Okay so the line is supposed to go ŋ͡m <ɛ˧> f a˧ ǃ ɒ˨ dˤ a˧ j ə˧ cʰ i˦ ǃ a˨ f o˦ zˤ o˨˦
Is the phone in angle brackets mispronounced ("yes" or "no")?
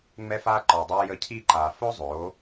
no